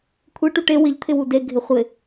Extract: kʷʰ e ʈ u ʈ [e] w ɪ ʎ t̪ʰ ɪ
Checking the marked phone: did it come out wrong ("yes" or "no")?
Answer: no